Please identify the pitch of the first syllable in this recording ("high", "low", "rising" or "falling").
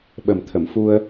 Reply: low